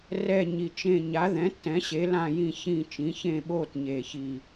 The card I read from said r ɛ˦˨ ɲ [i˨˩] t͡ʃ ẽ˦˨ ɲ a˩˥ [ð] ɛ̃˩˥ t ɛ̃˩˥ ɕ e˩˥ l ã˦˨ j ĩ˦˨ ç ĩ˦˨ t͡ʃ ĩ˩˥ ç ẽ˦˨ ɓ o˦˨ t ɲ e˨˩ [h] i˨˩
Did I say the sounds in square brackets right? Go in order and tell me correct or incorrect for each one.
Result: correct, correct, incorrect

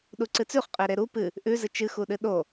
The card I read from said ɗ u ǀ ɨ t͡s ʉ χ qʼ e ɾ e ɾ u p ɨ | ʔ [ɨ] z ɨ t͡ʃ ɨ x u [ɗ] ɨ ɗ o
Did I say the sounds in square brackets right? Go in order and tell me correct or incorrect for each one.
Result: incorrect, correct

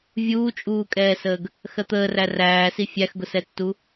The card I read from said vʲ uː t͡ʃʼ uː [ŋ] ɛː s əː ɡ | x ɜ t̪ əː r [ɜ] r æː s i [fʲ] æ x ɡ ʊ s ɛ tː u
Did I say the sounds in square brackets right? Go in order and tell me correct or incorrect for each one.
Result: incorrect, incorrect, correct

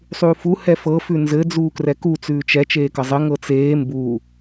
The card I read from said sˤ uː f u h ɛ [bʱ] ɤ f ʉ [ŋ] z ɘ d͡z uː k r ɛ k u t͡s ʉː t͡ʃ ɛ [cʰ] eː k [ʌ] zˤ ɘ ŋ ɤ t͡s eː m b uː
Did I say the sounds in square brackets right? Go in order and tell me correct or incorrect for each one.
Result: incorrect, incorrect, incorrect, correct

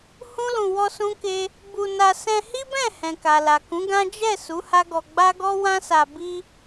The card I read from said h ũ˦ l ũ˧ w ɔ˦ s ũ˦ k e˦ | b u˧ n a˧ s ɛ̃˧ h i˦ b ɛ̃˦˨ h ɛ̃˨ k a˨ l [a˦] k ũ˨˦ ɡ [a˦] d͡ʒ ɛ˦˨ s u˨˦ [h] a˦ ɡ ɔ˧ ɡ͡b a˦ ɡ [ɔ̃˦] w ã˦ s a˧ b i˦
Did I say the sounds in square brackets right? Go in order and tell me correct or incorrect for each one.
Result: incorrect, incorrect, correct, incorrect

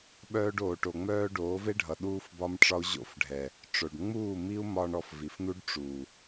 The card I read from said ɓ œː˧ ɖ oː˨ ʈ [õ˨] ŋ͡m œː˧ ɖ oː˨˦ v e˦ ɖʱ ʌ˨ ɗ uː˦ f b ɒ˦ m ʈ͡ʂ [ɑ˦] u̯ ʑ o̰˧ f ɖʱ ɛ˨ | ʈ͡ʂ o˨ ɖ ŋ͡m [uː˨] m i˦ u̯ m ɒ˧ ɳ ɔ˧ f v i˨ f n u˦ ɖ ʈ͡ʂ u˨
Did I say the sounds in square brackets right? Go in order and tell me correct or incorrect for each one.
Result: incorrect, incorrect, incorrect

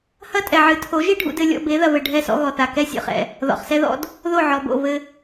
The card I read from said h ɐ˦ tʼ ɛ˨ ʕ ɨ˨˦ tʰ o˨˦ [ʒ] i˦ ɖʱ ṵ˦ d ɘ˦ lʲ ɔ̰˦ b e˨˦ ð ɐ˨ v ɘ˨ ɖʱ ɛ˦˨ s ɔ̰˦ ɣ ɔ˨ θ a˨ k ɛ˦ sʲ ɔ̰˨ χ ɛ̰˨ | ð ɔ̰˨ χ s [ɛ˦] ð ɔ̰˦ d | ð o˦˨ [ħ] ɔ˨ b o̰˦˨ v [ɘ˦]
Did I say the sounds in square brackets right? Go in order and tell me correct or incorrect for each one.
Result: correct, correct, incorrect, correct

